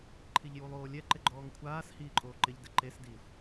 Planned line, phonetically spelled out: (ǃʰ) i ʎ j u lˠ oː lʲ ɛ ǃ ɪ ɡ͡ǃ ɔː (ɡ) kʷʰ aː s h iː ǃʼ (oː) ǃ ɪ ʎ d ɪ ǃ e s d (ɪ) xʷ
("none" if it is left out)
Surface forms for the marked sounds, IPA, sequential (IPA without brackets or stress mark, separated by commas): ǃʰ, ŋ, oː, i